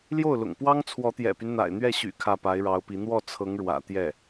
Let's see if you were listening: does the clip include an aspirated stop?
yes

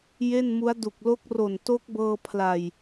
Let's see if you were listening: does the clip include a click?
no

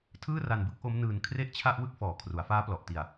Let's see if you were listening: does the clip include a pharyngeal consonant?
no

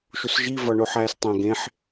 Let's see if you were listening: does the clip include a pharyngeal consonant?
yes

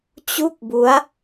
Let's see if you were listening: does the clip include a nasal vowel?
no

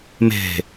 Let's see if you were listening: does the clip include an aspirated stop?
no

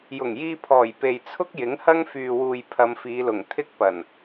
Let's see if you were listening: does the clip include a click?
no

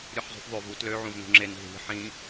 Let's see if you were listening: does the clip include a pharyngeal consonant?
yes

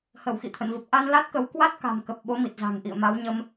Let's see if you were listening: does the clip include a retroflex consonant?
no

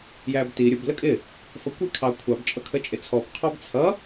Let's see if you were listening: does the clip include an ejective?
yes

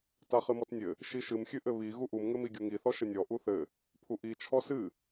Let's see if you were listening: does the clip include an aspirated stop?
yes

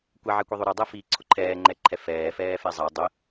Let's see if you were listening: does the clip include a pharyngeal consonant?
yes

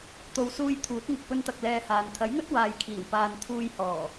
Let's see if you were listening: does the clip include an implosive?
no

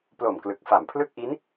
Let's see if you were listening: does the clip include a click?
no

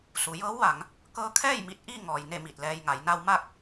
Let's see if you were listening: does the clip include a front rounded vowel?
no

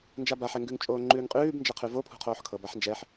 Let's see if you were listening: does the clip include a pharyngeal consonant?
yes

